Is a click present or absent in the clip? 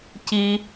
absent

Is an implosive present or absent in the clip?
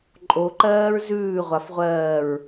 absent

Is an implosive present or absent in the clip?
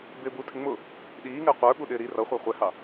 present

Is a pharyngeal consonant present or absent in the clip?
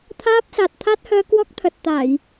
absent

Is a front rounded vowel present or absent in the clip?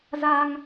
absent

